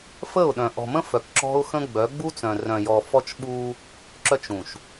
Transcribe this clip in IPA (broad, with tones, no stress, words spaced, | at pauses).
fə˦˨ʊ̯ɗœ̃˨ ʔɔ̤˨mə̃˦ fœ˨kǁɔ̤˦ʊ̯xə̃˦ɡ͡bœ˨˦ ɡ͡bu˦t͡sœ̃˨ rœ̃˨jɔ˨ fɔ˦t͡ʃɓu˦ | ǁœ˦t͡ʃũ˨ʃ